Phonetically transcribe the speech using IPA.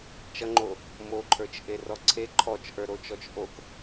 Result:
t͡ʃ ʌ ŋ͡ǃ o | m o ǃʰ ə˞ t͡ʃ ʔ e r ɔ ǀʰ e ǃʰ ɔ t͡ʃ ʔ ə˞ ɾ o t͡ʃ ɔ t͡ʃ ʔ o k

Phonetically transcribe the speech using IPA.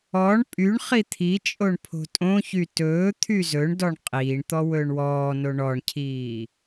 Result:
ɔ ɳ pʼ y ɳ χ i t̪ʰ i t͡ʃʼ o ɳ pʰ o̤ tʼ õ ç y t ɵː t̪ʰ y z ɵ ɳ d ɔ ɳ qʼ iː ɳ t̪ ɔ w ɵː ɳ w ɔː n o ɳ ɔ ɳ cʰ iː

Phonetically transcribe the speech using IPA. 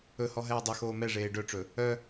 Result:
ɵ h ɔ ɦ ɛː dˤ ɵ x oː m ɛ ʐ eː ɖ œ ʈ͡ʂ ɵ | œ

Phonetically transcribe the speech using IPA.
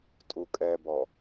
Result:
tʼ u kʼ ɛ b ɔ

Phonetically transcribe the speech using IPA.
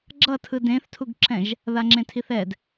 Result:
ɡ͡ǁ ʌ tʰ ɯ d ẽ θ tʰ u ɡ ǁ ɛ̃ ʒ | ð a ŋ͡ǁ ẽ tʰ i θ ɛ d

